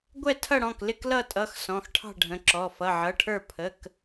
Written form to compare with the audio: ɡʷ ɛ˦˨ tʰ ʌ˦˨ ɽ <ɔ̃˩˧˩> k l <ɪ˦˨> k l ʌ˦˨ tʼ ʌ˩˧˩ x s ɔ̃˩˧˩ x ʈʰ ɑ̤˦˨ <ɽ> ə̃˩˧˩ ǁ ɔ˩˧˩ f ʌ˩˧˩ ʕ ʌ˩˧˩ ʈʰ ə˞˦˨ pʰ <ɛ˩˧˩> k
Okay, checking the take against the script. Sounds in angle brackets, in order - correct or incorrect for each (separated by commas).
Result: correct, correct, incorrect, incorrect